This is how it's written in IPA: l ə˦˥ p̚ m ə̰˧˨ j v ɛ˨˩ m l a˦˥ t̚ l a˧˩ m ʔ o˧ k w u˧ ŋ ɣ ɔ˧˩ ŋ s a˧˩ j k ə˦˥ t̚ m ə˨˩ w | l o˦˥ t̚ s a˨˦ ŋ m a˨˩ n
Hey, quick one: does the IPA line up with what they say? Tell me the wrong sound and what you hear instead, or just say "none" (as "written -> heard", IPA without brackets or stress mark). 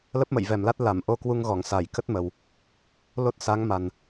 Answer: none